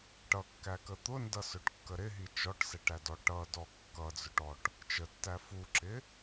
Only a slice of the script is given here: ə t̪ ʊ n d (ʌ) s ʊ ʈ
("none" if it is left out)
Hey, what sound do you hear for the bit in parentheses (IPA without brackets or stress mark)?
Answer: ʌ